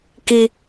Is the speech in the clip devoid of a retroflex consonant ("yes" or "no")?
yes